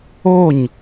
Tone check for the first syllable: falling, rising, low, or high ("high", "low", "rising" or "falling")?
falling